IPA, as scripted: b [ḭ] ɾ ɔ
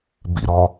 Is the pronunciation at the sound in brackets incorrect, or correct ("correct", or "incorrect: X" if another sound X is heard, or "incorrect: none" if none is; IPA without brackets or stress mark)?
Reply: correct